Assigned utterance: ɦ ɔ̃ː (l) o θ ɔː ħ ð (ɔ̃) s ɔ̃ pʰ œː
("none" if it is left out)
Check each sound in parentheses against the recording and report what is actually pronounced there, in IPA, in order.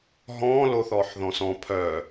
l, ɔ̃

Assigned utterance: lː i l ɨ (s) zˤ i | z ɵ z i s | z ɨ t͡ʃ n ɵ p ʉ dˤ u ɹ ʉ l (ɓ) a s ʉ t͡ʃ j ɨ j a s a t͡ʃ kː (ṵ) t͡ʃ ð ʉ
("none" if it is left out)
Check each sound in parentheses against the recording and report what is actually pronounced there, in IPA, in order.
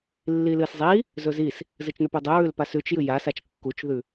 s, p, u

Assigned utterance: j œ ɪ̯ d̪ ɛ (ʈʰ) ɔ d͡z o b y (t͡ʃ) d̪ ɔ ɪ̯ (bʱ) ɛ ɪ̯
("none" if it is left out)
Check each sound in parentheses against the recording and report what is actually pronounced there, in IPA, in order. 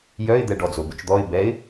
ɖ, t͡ʃ, b

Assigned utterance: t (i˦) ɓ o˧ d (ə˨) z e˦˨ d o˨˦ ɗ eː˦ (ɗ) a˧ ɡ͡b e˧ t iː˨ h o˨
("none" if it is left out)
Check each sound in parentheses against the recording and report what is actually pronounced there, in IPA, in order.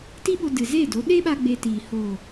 i˦, ɨ˨, ɓ

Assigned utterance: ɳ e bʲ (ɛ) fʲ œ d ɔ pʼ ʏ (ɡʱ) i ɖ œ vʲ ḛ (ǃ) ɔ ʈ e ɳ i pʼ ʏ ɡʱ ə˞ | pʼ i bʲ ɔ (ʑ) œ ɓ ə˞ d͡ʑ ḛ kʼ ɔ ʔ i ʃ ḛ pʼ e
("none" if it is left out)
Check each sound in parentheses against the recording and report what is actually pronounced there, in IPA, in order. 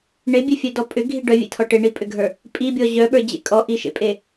e, ɡʱ, tʰ, ʑ

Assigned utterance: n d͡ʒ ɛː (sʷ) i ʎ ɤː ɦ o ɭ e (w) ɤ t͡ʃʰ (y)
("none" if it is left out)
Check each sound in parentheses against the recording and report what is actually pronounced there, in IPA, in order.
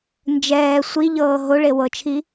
sʷ, w, i

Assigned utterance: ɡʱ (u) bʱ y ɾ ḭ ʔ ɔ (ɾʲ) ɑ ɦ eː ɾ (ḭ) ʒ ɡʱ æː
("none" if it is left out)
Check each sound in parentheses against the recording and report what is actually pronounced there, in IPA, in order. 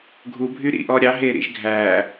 u, ɾʲ, ḭ

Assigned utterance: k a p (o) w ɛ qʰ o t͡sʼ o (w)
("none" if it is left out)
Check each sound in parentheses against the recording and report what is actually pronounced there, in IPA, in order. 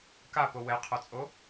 o, none

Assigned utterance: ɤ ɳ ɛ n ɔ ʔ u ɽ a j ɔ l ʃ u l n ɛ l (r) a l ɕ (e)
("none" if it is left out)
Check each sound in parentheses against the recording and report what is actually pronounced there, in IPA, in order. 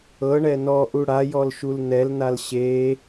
n, e

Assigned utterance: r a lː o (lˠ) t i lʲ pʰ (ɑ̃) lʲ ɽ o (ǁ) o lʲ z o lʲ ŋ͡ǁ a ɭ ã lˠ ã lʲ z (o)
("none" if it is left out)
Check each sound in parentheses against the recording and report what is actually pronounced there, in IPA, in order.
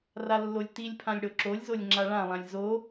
lʲ, ã, ǁ, o

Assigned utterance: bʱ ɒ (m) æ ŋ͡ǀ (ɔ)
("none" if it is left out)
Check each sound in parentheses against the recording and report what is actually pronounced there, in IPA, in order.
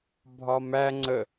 m, ə

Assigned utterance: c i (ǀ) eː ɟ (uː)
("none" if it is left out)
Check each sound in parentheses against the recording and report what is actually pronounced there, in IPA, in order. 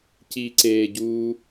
ǀ, uː

